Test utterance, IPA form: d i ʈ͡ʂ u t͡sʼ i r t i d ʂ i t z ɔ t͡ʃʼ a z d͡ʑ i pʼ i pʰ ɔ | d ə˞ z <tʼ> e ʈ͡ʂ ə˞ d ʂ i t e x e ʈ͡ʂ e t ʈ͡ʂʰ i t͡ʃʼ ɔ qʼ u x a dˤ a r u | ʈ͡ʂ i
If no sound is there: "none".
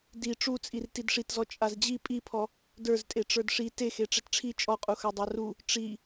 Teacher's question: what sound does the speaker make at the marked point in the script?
tʼ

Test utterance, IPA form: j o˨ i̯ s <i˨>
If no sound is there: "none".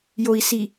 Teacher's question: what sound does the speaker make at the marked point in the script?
i˨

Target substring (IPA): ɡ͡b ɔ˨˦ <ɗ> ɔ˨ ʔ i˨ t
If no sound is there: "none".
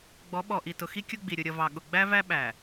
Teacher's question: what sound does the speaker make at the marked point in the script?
ɓ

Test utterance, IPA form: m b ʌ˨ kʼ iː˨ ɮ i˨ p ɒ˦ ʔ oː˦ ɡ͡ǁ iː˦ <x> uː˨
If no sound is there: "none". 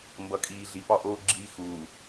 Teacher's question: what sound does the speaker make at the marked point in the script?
x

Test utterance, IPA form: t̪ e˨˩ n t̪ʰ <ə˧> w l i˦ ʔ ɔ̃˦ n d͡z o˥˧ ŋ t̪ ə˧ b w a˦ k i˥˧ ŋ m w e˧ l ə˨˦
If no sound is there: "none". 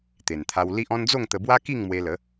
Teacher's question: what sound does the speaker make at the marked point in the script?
a˧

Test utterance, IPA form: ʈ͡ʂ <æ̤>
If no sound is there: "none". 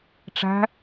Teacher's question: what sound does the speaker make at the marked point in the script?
æ̤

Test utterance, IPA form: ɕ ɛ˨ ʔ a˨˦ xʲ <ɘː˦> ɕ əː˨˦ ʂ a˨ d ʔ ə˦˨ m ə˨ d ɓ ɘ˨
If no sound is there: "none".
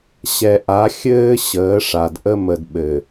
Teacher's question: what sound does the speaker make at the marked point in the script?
ɘː˦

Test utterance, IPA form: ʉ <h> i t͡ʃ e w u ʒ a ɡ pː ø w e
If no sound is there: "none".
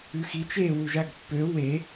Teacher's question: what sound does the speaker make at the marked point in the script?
x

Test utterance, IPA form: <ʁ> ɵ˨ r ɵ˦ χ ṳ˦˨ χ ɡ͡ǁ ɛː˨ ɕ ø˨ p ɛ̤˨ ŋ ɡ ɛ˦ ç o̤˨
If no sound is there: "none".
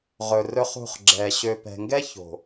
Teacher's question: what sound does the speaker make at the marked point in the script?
ʁ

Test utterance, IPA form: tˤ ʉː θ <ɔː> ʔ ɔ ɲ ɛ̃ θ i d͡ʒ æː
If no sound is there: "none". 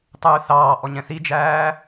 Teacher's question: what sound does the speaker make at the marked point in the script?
ɑː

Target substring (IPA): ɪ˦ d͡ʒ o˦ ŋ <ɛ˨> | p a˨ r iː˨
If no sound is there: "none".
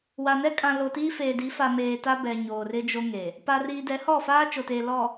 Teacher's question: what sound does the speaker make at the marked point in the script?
e˨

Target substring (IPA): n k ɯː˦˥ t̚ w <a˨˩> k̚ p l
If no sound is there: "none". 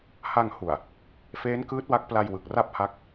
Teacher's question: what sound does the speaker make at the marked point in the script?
a˦˥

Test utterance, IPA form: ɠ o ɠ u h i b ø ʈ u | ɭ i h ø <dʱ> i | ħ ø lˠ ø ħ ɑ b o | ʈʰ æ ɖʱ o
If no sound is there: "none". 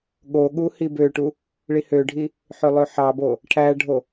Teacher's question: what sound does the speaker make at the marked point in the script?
ɖʱ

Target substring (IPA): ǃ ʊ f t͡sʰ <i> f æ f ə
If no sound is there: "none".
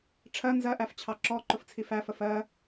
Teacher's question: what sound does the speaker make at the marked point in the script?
i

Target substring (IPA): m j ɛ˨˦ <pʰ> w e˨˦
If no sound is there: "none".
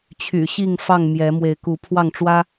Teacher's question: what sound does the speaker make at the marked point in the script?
m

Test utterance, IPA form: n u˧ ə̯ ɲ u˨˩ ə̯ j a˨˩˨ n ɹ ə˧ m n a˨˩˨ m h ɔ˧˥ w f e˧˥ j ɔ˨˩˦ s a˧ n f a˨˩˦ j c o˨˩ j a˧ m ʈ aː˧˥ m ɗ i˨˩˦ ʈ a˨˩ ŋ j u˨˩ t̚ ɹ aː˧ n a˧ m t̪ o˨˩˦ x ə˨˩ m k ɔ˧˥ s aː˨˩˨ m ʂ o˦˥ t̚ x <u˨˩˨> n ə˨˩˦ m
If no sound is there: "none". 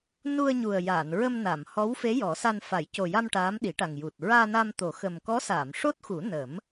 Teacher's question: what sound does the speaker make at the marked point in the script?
u˨˩˦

